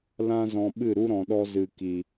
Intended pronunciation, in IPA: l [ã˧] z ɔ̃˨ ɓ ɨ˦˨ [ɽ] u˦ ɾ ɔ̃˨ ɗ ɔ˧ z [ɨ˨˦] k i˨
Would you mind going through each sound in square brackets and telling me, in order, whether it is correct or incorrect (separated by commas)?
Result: correct, incorrect, incorrect